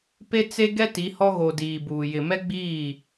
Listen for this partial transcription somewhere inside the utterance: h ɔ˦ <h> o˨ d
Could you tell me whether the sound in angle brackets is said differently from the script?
yes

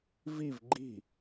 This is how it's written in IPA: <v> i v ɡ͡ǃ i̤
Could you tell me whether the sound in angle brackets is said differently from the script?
no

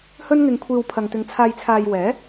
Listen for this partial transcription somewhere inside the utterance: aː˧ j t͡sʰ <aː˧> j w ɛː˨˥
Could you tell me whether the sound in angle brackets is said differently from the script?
no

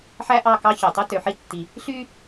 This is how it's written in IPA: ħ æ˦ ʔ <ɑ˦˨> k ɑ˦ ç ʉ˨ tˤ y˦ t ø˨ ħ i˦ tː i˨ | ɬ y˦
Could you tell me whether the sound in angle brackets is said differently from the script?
no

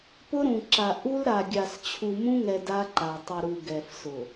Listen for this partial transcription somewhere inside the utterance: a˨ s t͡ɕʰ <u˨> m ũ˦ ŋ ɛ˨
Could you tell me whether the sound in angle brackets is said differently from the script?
no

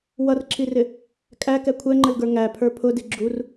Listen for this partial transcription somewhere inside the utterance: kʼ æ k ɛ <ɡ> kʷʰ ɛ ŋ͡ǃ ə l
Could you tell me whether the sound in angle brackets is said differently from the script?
yes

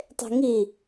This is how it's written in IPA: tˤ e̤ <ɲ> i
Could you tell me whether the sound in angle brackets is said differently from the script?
yes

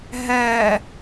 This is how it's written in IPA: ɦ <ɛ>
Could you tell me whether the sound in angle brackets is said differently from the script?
no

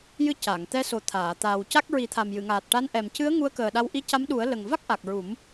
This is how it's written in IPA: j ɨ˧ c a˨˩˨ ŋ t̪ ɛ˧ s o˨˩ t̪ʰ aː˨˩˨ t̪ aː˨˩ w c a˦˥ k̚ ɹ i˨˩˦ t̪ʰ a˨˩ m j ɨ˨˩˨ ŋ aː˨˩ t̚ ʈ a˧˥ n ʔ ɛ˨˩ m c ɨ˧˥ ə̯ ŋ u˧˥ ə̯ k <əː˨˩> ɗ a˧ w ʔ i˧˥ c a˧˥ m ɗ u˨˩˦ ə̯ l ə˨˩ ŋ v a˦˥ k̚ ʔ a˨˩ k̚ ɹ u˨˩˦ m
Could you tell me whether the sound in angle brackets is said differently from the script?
no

